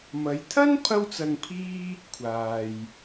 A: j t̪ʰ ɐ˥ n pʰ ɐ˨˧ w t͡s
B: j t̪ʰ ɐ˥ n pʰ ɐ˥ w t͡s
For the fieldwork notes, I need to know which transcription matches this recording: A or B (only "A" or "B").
B